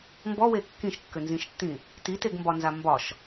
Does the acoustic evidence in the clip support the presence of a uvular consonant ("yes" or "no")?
no